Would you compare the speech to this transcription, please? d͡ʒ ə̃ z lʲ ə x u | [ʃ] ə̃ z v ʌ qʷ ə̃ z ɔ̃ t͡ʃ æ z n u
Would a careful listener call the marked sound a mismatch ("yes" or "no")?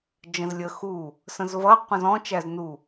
yes